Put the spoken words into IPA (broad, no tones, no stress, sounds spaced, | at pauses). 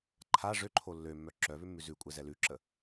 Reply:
ǃʰ a ʐ ø ǃʰ o lː ø mː œ ǁ œ β ʏ mː ʉ z ʉ kʷʼ ɛ z ɛ l ʉ ǁ ə